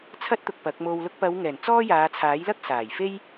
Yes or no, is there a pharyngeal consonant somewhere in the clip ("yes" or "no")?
no